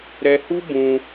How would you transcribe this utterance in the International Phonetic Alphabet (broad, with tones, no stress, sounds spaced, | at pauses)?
ɾ ɛ˧ h u˦ b ũ˧